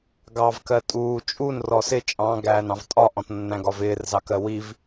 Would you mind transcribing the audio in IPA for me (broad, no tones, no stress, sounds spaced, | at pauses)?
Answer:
ɡ ɑ v k ɜ tʼ uː t͡ʃʼ u n r ɔ s ɪ t͡ʃʼ ɑ̃ ɡ æː n ɑ̃ v tʼ ɒ ʔ ɔ̃ t nː æ̃ ɡ ɒ v ɪː r z ɑ k ɜ w i v